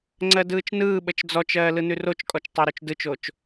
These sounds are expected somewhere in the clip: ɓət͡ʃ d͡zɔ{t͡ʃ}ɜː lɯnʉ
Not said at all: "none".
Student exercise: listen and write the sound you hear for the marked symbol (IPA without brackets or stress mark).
t͡ʃ